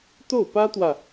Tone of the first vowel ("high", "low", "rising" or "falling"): falling